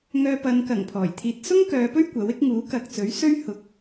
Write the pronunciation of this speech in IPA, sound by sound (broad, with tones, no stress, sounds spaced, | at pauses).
ŋ œː˧ p ɐ˨˧ n k ɐ˨˩ ŋ pʰ ɔː˨˩ j t̪ʰ iː˧ t̚ s ʊ˥ ŋ k œː˨˧ p ɵ˥ ɥ kʷ ɐ˨˥ w ɪ˥ k̚ ŋ uː˨˥ k ɐ˧ k̚ t͡s ɵ˨˥ ɥ s ɵ˥ ɥ h ʊ˧ k̚